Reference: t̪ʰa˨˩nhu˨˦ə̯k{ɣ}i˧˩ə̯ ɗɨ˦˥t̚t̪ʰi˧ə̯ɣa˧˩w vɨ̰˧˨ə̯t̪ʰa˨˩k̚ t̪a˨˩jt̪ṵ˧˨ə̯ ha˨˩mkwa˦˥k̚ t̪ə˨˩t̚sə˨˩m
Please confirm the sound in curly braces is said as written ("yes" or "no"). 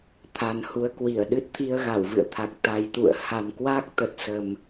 no